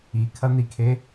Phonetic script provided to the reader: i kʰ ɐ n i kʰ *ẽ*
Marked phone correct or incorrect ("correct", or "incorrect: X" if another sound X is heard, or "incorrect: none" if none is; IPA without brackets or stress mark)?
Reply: incorrect: e